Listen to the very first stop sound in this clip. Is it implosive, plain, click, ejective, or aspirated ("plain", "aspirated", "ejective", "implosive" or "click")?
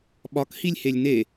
implosive